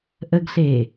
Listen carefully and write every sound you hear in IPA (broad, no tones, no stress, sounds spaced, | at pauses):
ʔ ə ɡ ɬ eː